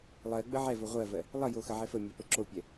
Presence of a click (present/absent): present